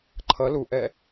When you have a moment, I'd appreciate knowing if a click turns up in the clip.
yes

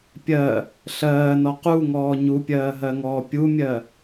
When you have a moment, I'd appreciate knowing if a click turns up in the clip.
no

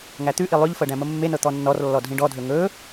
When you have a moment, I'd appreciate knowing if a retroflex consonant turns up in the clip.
yes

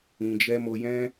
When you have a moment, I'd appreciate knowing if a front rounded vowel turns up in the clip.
no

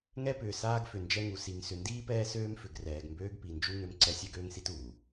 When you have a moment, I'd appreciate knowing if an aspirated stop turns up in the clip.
no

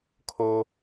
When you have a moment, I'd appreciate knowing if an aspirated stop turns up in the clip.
yes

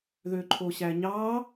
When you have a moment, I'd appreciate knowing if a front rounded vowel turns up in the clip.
yes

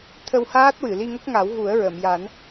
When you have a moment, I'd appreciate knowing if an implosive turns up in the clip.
no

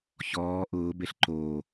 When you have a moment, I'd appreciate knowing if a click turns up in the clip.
yes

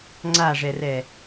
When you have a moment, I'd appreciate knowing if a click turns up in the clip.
yes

